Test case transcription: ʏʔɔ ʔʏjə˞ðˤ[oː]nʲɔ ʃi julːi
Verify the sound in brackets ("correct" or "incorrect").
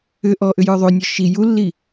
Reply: incorrect